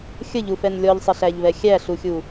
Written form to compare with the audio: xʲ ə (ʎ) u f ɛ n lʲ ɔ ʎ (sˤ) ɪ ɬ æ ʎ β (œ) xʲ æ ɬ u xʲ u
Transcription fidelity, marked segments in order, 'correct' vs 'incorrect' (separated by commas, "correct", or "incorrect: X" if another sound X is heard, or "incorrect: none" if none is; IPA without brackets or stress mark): correct, correct, incorrect: ɛ